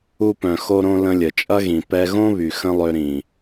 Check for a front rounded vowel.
present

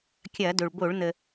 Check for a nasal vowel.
absent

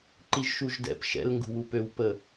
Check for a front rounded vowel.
present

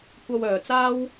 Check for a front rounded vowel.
present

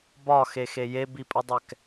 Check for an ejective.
present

